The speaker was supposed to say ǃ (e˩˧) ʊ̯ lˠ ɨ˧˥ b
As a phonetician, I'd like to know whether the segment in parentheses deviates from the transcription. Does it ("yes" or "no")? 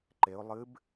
no